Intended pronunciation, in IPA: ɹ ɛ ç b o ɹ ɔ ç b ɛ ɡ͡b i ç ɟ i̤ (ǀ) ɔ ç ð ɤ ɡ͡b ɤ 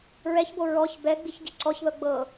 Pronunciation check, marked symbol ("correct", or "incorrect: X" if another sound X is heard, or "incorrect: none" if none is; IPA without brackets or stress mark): correct